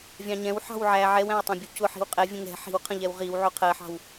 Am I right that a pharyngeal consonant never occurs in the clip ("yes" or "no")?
no